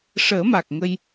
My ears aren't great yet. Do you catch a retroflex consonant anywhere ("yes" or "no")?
yes